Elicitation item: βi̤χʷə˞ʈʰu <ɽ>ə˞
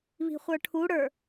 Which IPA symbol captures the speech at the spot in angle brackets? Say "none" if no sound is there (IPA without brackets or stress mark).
ɽ